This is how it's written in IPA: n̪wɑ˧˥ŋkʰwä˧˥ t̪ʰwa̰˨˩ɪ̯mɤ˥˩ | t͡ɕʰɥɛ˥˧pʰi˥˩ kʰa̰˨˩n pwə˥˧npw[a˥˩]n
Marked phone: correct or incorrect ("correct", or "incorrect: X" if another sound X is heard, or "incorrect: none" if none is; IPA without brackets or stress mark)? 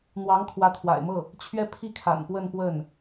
incorrect: ə˥˩